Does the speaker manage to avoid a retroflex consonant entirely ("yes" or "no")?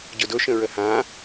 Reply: yes